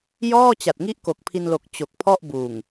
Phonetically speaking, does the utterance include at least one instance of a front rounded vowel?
no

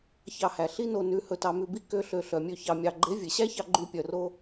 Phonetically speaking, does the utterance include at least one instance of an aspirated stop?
no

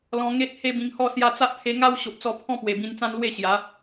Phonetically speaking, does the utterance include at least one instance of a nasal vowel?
yes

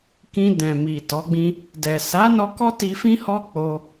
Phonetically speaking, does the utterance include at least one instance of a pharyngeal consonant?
no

